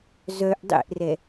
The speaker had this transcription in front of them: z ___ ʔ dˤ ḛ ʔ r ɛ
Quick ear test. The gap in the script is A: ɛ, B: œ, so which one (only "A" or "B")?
B